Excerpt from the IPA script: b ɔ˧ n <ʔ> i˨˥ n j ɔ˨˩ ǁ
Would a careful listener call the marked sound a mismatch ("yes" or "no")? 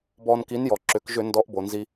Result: yes